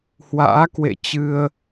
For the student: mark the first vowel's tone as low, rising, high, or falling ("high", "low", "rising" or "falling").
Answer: rising